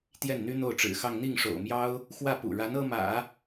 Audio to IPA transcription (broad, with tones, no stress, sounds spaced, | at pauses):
t̪ j ɛ˥˩ n n̪ y˥ n̪ o˥˩ ʊ̯ ʈ͡ʂ ɻ̩˨˩ x ɑ˥˧ ŋ n̪ i˥˩ ŋ ʂ o̰˨˩ ʊ̯ m j ɑ˥ ʊ̯ | x w ä˥˩ p ṵ˨˩ ɻ a˧˥ n ɤ˥ m ä̰˨˩˦